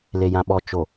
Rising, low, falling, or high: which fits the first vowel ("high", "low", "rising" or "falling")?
low